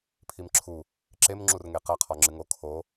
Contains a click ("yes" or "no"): yes